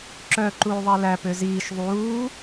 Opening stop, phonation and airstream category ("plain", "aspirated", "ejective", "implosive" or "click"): click